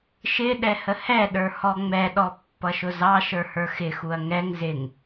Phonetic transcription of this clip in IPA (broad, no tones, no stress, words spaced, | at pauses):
ʃɪ ɗɛhəhɛɗə˞ hɔŋ͡mɛɗɔ pːʌʃʊzɑʃə˞ hə˞xɪxuɐ̯ ŋɛŋ zɪŋ